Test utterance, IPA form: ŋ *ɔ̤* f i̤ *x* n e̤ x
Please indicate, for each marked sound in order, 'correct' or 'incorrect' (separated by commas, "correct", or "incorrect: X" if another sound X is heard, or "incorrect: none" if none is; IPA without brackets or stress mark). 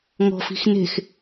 correct, correct